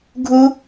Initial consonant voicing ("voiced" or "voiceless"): voiced